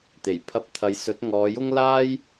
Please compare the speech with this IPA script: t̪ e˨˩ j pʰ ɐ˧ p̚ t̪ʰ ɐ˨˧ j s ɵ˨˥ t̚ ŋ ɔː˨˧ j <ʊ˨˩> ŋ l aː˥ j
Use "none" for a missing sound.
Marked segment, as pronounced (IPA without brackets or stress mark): ʊ˥